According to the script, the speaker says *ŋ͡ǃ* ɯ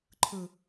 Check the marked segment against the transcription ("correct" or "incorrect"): incorrect